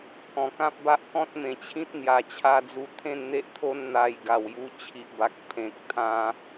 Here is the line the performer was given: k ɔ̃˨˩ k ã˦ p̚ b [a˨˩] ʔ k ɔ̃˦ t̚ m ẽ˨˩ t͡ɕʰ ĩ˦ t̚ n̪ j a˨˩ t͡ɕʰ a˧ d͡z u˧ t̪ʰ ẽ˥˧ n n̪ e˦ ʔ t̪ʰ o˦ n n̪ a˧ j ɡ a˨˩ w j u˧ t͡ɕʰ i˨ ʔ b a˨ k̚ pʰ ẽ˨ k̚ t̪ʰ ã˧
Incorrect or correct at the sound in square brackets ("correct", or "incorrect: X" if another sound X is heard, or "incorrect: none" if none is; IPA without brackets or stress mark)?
incorrect: a˦